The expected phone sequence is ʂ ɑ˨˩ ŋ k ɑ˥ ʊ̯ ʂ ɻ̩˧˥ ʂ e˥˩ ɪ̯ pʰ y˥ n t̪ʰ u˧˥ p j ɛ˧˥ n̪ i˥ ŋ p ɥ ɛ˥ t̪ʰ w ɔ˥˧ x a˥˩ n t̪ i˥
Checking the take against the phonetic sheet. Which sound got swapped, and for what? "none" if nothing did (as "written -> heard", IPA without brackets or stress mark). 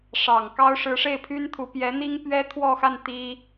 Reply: none